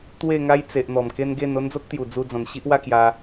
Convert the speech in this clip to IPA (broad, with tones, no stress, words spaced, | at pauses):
t̪we˥˧ŋa˦j t͡se˨ʔn̪ɔ˨˩m ke˦nɡe˥˧n o˦nd͡zo˦k̚t̪ju˨˩ d͡zu˧d͡zɔ̃˨˩nɕi˦ʔ wa˥˧kja˧